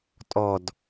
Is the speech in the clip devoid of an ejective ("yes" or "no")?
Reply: no